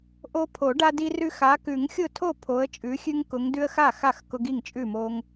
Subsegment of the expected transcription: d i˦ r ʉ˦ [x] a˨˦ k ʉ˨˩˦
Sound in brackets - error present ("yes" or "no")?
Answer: no